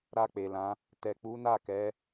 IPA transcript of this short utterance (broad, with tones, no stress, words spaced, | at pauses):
ɾa˧k͡pe˨lã˨˦ | tɛ˨k͡pu˨˦na˦˨kɛ˨˦